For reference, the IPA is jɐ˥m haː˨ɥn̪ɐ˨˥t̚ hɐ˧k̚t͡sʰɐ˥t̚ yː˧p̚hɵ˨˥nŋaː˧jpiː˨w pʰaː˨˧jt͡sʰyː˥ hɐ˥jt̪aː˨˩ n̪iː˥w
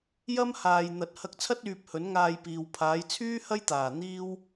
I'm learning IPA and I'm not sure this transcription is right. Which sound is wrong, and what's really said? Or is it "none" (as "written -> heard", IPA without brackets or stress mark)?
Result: ɥ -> j